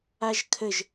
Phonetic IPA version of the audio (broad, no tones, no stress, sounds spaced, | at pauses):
a ʒ kʰ ə ʒ